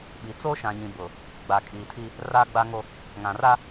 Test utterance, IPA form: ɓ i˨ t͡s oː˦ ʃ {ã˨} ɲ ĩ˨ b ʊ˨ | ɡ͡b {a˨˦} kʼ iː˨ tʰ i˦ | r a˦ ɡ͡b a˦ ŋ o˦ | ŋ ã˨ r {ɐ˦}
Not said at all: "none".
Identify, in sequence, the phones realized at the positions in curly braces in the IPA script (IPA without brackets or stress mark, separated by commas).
ã˨, a˨, a˦